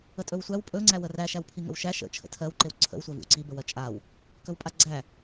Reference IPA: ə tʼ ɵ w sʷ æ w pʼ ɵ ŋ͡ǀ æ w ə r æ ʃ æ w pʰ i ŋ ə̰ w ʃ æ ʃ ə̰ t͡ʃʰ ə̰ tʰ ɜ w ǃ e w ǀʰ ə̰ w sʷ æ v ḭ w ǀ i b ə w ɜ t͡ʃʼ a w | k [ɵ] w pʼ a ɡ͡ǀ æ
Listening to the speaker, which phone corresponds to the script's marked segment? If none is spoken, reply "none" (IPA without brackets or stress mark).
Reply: ɵ